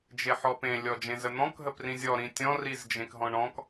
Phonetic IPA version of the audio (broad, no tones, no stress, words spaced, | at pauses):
d͡ʒeħɔpẽ lʲɔd͡ʒẽzən̪ɔ̃k ɦəprĩzʲɔ ɾĩtʲɔ̃ rizd͡ʒẽkɦɔ̃ɳɔ̃k